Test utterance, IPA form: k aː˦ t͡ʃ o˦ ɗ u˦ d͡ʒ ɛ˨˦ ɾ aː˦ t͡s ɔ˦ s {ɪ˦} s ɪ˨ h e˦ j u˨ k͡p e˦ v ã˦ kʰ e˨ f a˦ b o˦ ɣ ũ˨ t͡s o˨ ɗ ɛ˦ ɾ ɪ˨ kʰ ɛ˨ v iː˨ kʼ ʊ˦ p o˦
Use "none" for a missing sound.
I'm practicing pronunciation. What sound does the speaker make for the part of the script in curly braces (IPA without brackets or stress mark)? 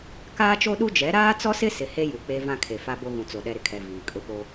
ɪ˦